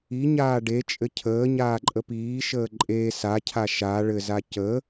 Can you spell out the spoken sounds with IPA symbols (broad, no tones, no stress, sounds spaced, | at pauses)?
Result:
i ɲ aː ɖ e t͡ʃʼ ɘ cʰ əː ɲ aː ǃʼ ə p iː ʃ əː ǃʼ eː s a cʰ a ʃ a ɭ ɘ z a c ə